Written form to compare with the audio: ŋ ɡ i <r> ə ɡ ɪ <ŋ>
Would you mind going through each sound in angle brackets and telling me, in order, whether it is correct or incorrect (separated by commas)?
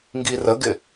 correct, incorrect